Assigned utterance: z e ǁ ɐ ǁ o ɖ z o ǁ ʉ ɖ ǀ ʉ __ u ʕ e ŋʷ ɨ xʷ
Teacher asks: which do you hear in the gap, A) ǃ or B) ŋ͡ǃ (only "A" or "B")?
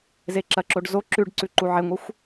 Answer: A